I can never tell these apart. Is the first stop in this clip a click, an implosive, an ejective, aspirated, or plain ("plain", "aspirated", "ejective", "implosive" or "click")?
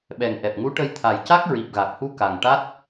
implosive